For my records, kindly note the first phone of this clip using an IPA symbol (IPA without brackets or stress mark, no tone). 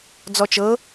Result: d͡z